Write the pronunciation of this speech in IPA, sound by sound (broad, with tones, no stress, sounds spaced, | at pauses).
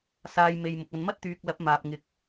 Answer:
s aː˧ j m e˧ j m ʊ˨ k̚ ɐ˨ n m ɐ˥ t̚ t̪ yː˨ k̚ l ɐ˨˥ p̚ m aː˨ p̚ ŋ ɪ˨ k̚